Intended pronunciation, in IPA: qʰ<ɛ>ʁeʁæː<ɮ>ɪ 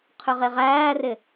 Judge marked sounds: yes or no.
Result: no, no

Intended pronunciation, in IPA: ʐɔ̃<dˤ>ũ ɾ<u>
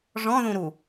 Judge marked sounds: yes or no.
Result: no, yes

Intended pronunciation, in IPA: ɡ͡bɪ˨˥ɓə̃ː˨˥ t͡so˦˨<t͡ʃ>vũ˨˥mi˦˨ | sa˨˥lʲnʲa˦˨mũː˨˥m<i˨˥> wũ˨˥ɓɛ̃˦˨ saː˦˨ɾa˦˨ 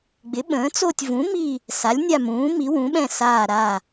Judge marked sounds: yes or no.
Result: no, yes

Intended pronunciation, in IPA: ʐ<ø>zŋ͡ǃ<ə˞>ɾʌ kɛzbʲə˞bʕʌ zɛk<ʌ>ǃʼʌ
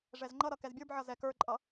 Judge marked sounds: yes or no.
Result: no, no, no

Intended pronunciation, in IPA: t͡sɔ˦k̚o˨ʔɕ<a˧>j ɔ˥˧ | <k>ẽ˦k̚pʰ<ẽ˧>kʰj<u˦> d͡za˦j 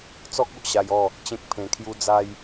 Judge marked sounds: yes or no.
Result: yes, no, yes, yes

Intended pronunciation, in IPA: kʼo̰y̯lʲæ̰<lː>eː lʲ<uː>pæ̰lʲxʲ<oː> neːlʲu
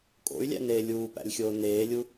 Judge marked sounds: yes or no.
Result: no, yes, yes

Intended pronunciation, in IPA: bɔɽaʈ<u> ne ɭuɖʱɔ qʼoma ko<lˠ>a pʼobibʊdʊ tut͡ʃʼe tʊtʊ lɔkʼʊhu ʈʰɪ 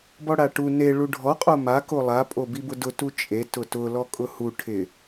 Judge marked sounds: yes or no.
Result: yes, yes

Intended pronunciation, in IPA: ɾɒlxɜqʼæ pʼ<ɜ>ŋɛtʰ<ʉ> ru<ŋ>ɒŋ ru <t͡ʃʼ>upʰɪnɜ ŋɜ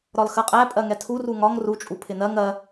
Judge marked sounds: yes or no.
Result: yes, no, yes, yes

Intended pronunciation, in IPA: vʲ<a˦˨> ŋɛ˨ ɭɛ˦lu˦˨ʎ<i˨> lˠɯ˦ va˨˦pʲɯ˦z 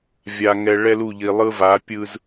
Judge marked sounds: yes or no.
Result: no, yes

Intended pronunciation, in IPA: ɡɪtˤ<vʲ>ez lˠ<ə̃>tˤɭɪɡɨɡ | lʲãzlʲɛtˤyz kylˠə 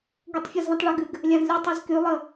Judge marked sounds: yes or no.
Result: no, yes

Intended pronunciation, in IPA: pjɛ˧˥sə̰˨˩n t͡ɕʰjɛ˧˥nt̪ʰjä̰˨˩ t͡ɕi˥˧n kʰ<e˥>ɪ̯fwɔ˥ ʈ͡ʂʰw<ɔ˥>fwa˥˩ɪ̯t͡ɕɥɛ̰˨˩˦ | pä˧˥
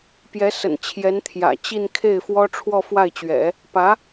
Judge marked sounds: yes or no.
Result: no, no

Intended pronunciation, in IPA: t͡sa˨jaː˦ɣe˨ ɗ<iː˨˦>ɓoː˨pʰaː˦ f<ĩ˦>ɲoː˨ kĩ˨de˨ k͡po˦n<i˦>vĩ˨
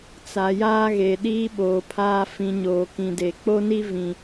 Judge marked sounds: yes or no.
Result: no, no, yes

